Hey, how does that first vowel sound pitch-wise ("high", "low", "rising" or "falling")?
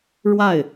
falling